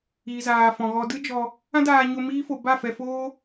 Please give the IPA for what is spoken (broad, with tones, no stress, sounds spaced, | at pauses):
iː˨ z aː˨ f ɔ̃˨ ɣ ɔ˧ d ɨ˦ d͡ʒ ɔ˧ | ã˦ d aː˧ ɲ o˧ m iː˦ f o˧ b a˦˨ f ɛ˧ f oː˦